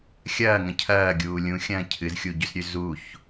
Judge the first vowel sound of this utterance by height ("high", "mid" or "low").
low